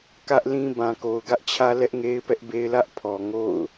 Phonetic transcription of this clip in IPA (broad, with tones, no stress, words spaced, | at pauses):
kä˦ʔlĩ˦bã˨ ko˨ʊ̯ɡä˦ʔt͡ɕʰä˦lɛ˦ʔ ŋe˦ɪ̯pɛ˦ʔbe˦ɪ̯lä˦ʔ pʰɔ˨ŋo̰˦˨ʊ̯